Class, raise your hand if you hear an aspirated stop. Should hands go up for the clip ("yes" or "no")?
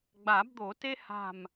no